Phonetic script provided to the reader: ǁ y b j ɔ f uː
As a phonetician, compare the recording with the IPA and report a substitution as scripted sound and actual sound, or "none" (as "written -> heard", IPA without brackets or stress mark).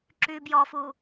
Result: none